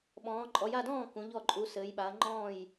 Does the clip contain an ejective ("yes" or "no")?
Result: yes